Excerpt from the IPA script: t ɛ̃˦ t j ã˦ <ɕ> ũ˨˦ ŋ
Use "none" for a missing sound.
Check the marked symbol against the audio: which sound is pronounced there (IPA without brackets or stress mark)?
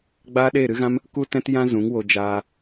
z